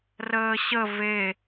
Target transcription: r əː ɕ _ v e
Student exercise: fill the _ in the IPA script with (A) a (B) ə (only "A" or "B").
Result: B